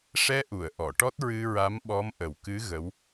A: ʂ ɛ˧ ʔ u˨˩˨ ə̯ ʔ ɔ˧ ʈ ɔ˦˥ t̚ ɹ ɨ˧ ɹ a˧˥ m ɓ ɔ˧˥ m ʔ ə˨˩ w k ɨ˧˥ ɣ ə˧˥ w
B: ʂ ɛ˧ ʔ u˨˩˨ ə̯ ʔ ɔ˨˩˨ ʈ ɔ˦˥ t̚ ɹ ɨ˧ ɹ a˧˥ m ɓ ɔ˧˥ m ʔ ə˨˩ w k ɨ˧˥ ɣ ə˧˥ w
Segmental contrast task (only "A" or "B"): B